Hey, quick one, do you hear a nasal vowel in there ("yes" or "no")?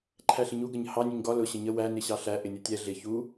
no